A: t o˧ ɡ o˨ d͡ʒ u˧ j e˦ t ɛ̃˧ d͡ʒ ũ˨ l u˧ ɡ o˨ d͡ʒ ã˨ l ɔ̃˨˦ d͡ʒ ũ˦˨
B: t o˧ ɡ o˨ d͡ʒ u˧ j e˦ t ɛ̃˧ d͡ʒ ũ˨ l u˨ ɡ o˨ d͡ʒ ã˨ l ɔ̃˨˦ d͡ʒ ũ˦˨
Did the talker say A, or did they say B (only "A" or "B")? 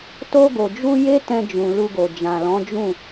A